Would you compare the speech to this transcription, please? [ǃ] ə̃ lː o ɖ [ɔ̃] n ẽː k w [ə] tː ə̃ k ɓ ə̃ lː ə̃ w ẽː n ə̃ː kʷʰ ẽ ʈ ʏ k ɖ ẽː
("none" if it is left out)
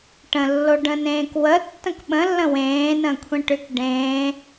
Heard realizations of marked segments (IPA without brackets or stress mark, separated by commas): ʈ, ə̃, ə